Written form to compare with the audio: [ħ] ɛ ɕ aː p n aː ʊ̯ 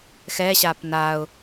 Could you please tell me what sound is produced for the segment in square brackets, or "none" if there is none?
x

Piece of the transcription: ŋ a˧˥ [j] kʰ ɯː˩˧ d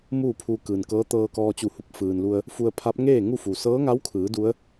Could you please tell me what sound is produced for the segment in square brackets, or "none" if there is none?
w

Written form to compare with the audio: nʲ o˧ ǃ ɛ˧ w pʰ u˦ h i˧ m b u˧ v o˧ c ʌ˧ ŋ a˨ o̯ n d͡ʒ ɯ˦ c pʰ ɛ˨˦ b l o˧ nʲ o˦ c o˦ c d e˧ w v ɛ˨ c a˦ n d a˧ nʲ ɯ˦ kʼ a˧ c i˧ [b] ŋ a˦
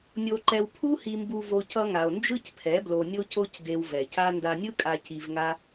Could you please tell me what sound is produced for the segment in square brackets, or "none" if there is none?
v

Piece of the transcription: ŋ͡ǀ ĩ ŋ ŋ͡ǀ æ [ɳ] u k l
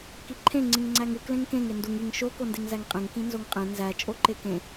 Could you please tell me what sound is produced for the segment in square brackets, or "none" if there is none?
ŋ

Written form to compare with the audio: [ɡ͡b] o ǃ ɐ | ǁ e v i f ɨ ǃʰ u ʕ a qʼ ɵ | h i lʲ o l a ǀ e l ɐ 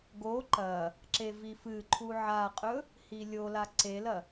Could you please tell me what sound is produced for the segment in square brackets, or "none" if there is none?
ɡ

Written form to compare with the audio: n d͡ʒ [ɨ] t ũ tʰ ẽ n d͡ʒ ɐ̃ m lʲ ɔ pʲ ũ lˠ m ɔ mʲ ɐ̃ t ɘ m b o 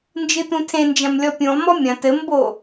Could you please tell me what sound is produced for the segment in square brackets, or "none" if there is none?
ɨ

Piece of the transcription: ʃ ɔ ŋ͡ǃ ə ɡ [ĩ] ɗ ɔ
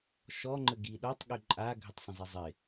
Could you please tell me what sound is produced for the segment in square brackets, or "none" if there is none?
i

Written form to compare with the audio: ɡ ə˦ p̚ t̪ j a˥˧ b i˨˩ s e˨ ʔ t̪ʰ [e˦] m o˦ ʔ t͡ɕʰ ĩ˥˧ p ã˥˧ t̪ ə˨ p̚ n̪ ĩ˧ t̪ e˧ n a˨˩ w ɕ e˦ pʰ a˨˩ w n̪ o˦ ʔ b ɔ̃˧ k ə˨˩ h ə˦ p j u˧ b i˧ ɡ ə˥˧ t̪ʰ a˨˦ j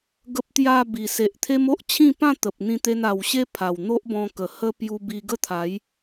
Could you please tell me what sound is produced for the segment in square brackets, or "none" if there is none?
e˦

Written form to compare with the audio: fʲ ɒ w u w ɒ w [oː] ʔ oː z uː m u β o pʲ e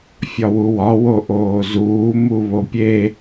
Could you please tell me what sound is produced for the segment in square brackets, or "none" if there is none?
o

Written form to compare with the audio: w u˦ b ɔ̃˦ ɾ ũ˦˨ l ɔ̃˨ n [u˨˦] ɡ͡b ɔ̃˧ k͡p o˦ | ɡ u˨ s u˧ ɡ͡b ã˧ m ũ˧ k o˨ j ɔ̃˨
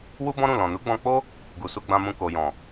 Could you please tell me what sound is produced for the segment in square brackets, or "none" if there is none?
u˨˦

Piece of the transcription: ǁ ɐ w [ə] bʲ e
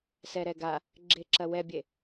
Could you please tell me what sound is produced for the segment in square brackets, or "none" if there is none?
ɛ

